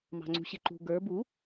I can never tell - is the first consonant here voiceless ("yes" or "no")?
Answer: no